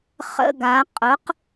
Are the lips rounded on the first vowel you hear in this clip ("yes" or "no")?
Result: no